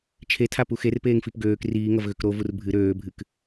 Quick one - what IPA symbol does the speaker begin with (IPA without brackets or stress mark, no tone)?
t͡ʃʰ